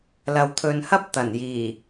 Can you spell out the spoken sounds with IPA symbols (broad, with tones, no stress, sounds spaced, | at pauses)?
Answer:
l ɐ˨ w t̪ʰ ɵ˨ n h ɐ˥ p̚ t̪ ɐ˨˩ n j iː˨˩